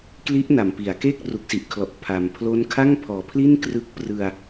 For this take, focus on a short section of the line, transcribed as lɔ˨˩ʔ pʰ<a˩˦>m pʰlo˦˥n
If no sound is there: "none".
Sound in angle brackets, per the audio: a˨˩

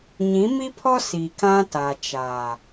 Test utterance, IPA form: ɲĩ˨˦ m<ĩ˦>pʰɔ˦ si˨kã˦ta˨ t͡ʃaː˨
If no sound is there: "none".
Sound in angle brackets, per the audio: i˦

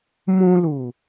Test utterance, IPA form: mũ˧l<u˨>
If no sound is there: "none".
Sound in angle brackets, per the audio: u˨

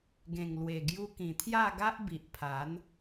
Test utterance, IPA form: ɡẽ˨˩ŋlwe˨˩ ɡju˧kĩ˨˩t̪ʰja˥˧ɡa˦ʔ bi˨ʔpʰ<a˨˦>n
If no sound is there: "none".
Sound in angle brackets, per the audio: a˨˦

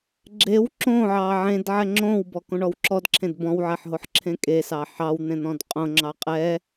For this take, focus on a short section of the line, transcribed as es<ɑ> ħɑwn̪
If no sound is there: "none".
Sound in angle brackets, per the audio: ɑ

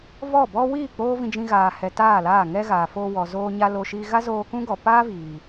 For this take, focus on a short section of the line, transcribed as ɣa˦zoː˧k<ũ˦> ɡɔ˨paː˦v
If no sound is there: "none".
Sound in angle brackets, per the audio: ũ˦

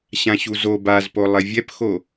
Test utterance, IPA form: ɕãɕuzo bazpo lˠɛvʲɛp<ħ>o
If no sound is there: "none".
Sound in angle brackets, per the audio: x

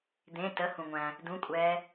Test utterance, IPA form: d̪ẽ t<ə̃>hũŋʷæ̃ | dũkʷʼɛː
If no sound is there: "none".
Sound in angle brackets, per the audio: ə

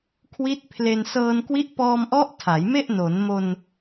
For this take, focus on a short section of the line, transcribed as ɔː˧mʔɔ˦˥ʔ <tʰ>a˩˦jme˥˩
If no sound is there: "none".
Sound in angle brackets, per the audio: tʰ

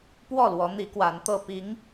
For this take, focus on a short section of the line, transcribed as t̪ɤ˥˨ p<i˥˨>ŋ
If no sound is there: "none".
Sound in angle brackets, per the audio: i˨˦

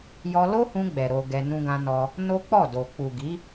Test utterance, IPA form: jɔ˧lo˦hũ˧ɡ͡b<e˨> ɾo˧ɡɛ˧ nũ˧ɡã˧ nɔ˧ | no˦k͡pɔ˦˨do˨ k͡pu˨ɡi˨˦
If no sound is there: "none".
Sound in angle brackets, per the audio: ɛ˨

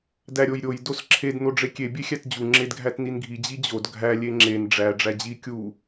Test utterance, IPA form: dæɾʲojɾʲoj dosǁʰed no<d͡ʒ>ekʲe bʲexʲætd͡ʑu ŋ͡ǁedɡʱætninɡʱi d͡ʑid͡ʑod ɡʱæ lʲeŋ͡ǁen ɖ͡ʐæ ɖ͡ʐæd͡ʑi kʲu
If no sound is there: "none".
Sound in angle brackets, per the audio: ɖ͡ʐ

